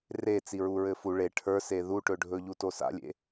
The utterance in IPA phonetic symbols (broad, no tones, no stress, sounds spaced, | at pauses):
r e t͡s i ɹ u ɹ ɘ f u ɭ e ʈʰ ə˞ s e ð u ʈ ɵ ɖʱ ɵ ʎ u t o s a̰ lʲ ḛ